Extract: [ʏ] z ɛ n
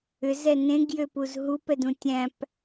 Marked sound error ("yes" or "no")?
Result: no